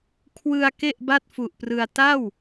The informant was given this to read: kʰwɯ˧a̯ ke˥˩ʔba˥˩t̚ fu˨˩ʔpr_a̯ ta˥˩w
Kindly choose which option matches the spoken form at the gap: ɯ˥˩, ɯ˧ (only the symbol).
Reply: ɯ˧